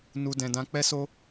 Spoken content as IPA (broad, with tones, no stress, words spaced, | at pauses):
nu˧dɛ̃˧ dã˧k͡pɛ˦so˦